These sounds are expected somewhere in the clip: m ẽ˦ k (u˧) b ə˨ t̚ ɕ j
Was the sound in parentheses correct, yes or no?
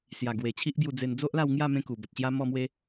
no